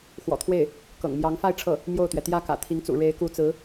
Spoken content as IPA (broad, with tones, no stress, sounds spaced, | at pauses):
x w ɔ̰˨˩ t̪ʰ w e˥˩ ɪ̯ | k ɤ̰˨˩ ŋ m j ɑ˧˥ ŋ f a˥˧ ɪ̯ ʈ͡ʂʰ ɤ˥˩ | m j o˥˩ ʊ̯ t̪ ɥ ɛ˩ t̪ j ä˥ k ä̰˨˩ t̪ʰ i˧˥ ŋ t͡s ṵ˨˩ ɻ e˧˥ ɪ̯ k u˧˥ t͡s ɹ̩˧˥